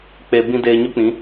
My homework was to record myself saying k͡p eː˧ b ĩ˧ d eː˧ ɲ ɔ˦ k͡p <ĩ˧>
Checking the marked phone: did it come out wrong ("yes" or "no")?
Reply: yes